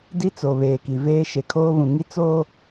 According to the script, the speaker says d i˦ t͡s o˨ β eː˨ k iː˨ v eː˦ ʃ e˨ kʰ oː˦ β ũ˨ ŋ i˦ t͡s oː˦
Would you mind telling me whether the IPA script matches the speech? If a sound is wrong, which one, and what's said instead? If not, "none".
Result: iː˨ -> i˨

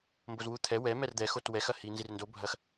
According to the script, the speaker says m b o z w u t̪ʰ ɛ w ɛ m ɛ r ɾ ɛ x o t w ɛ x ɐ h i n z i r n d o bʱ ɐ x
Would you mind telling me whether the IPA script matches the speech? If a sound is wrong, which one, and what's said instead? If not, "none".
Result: ɾ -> d̪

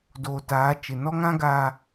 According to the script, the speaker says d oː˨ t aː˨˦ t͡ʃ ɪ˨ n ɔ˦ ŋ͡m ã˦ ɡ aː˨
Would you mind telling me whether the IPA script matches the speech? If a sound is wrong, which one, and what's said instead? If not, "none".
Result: ŋ͡m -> ŋ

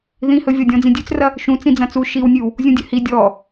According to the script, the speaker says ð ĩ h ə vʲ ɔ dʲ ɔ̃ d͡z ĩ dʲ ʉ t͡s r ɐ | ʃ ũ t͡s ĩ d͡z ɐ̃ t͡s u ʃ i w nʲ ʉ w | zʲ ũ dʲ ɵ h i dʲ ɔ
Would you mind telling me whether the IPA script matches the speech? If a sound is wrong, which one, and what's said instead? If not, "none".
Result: ə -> ɵ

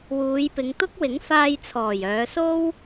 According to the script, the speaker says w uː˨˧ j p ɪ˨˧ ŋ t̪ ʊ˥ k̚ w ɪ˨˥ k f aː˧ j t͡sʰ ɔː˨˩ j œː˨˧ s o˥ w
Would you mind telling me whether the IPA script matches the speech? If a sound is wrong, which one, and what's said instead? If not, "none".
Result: k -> ŋ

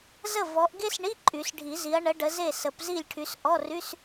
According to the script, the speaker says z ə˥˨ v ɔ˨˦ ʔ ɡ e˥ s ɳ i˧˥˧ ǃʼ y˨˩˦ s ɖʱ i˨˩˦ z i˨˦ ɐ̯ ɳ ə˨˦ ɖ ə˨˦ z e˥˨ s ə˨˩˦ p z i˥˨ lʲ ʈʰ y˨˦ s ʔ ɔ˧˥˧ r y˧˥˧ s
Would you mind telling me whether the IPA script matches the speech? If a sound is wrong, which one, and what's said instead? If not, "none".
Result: none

